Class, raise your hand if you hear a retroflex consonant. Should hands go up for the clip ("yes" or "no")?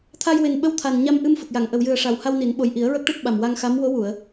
yes